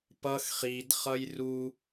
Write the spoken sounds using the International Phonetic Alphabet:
pʌx χidχʌj ru

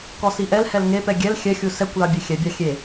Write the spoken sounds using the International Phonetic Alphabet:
kɔsiʔɛlhɛl ŋepɛ ɡʲɛl xʲɛxʲu sɛkʷlɑ bʲexʲɛbʲɑ xʲe

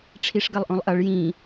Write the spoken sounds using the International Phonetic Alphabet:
ʈ͡ʂʰiʂɡɐlˠʔõlˠʔɐɭ jĩ

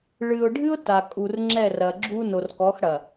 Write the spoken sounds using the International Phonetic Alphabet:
ɭɨ˨ʊ̯ɖʱɨ˦ʊ̯ ta˨ kʼu˨rŋ͡ǁɛ˦˨rɐ˨ɡ͡ǁu˦ no˨rkɔ˨˦xɽɐ˨

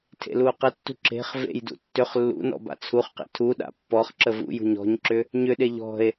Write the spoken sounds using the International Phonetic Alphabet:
tʰḛluo̯qətːṳ ǁe̤χ vḛjdṵ tːʏχ lːṵ nɔ̰ba̰t͡sʰuχqḛ tʰuɗa̰ pːɔχ ǁəvṵjṳ ɲɔ̤ɲǁʏ | ɲʏɗe ʎɔ̤e̯

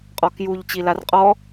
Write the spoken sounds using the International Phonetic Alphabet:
qʼɔkjuʎ t͡ɕilarqʼɔ

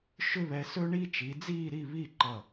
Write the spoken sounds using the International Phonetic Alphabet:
ʃʏ˥βɛ˧ sɵ˥ɳiː˥t͡ʃi˩˧d͡ziː˥˧ ɾi˥˧βiː˥˧ǃʌ˧˩

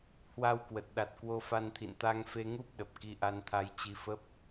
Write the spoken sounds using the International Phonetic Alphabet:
hwa˧wkwə˨˩t̚ɗa˨˩t̚ kwo˧fa˧nt̪ʰḭ˧˨n t̪a˧ŋfe˧ŋu˦˥p̚ ɗə˨˩p̚ki˧ ʔa˧nt̪ʰa˧jt͡ɕi˧ fə˦˥p̚

